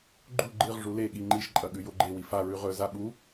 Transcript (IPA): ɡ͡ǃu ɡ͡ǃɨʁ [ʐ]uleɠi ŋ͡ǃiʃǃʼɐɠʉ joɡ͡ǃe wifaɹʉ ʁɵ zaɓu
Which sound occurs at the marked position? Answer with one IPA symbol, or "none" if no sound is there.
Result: ʐ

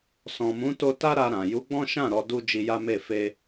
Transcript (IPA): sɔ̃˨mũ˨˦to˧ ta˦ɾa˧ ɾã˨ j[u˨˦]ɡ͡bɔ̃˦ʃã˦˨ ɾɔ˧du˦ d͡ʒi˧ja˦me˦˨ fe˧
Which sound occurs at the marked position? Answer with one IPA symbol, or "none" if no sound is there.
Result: u˨˦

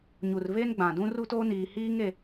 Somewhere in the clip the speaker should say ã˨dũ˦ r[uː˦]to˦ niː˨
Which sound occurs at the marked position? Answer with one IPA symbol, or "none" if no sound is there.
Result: u˦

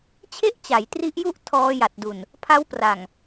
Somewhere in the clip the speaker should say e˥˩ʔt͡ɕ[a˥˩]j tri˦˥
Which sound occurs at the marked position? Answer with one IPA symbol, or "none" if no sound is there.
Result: a˩˦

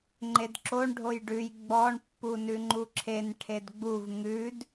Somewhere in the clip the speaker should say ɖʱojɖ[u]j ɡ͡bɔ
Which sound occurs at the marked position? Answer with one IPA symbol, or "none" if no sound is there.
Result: ʉ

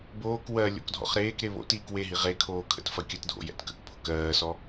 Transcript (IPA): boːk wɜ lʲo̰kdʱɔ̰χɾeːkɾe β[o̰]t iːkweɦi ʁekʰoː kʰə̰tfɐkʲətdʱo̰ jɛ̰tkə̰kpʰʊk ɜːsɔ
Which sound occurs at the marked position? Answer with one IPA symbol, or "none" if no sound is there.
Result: o̰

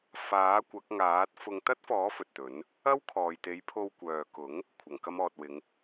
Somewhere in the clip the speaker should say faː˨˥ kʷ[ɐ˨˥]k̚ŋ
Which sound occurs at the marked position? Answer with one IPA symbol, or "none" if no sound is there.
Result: ɐ˨˥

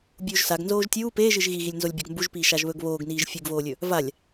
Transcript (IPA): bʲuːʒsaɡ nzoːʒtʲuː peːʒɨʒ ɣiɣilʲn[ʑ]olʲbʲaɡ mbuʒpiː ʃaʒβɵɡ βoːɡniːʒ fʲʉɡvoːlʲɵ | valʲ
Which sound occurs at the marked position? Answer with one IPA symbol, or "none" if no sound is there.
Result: z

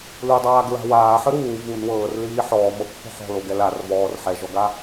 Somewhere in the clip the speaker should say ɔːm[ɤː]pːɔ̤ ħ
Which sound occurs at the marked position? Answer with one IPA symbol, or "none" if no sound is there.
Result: ɤ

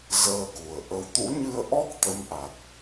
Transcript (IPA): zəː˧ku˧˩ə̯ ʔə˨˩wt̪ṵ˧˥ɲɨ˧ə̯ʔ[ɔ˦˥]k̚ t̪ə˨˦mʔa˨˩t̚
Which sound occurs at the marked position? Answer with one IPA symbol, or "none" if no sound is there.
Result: ɔ˦˥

